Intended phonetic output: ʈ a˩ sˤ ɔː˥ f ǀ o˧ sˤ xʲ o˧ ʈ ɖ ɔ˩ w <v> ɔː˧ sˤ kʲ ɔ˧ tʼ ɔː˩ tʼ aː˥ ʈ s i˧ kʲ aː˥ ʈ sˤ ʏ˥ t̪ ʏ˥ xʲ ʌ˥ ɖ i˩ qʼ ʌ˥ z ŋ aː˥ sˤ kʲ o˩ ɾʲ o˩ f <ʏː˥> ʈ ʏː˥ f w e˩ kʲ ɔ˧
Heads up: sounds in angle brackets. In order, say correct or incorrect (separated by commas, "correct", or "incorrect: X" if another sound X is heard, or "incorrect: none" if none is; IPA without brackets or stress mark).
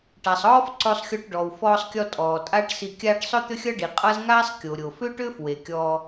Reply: incorrect: f, correct